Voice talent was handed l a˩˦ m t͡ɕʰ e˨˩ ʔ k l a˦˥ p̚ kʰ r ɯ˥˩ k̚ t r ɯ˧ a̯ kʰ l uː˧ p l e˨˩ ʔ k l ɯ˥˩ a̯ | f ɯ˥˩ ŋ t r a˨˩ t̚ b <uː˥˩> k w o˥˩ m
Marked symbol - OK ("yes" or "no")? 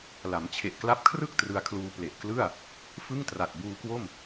no